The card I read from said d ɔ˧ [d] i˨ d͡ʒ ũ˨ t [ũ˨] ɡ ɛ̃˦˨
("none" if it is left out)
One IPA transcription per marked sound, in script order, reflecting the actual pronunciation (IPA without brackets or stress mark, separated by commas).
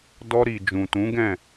ɾ, ũ˨˦